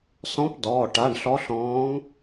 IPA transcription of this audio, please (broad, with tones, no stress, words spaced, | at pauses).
sɔ̃˧˥p dɔː˩˧˩ ʈa˩˧˩ɳ ɬɔ˧˥ɬɔ̃ː˧˥ŋ